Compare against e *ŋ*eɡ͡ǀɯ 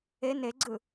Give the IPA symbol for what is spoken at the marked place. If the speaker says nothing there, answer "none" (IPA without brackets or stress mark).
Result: n